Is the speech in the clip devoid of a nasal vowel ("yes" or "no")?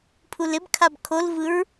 yes